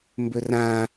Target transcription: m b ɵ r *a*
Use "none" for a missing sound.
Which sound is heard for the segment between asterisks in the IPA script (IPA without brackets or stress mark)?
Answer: ã